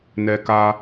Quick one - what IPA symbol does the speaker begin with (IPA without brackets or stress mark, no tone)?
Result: n